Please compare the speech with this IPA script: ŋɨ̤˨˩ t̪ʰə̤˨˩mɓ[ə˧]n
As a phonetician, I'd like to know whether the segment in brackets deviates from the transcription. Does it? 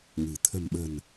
yes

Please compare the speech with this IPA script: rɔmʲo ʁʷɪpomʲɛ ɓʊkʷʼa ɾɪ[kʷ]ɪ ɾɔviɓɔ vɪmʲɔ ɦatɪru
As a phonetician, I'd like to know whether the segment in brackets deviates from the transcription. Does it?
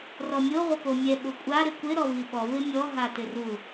no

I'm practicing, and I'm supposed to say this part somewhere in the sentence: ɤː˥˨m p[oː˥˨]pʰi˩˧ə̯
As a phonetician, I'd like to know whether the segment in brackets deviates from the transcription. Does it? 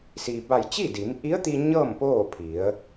no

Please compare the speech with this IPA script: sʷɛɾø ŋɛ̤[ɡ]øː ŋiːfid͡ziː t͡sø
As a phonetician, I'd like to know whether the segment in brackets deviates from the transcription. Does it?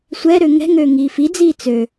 yes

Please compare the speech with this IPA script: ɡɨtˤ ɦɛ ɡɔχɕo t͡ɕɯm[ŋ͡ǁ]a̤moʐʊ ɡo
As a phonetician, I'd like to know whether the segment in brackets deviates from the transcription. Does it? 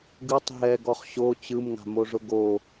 yes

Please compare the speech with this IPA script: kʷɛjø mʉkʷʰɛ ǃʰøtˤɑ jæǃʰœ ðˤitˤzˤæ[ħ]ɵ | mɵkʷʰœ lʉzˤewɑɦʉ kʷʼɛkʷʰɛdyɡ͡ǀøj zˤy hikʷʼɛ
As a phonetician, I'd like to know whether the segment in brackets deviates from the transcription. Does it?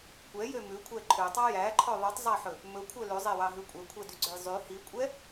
no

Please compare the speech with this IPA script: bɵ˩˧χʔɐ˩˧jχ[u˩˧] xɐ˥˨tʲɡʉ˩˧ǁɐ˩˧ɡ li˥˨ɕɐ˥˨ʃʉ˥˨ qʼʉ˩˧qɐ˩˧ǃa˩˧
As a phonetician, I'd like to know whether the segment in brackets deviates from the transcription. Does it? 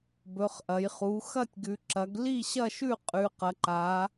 no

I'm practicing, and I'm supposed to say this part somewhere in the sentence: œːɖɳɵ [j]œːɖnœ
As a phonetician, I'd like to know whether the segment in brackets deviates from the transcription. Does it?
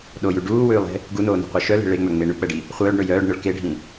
no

